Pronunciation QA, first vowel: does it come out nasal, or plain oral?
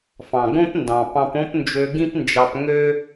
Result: nasal